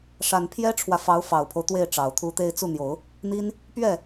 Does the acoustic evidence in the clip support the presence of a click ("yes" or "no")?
no